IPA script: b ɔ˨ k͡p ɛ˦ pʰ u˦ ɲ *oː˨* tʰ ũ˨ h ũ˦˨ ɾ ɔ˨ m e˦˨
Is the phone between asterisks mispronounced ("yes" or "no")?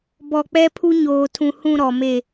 no